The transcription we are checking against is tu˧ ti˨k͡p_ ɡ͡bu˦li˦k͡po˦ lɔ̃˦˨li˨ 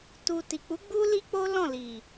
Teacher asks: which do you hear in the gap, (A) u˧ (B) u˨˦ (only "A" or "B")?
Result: B